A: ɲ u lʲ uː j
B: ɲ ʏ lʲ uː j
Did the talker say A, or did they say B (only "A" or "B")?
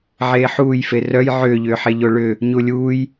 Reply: A